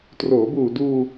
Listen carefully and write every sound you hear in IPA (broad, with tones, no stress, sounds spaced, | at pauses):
t r oː˩˦ b uː˨˩ d uː˧